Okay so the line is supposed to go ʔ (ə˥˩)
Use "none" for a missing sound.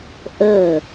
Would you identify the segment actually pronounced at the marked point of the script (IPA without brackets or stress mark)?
ə˥˩